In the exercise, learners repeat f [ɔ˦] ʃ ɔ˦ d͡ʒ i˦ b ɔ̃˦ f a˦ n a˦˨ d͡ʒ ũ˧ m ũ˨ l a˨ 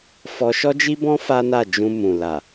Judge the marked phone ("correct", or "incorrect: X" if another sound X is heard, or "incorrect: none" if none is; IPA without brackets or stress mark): incorrect: ɔ˧